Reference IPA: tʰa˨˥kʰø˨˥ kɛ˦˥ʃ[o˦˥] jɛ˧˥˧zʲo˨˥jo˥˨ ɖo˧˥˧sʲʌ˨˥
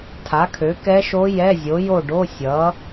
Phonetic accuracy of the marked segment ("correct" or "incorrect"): correct